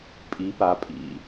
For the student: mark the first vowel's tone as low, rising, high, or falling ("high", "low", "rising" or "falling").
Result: rising